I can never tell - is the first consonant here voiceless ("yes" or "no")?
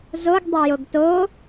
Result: no